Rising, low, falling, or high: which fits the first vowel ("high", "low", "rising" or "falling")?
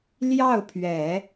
falling